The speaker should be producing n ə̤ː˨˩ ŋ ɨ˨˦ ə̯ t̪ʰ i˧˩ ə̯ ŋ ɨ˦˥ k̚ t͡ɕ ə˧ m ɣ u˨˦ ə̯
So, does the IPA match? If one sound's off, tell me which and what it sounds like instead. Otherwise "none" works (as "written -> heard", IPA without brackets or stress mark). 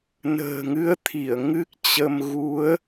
none